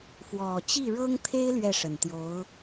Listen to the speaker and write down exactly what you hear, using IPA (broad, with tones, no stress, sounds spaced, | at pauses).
f w ɔ˨˩ t͡ɕ i˥˩ ɻ ɤ˥ ŋ t̪ʰ e˥ ɪ̯ l ɥ ɛ˥˩ ʂ ə˨˩ n t̪ j o˧˥ ʊ̯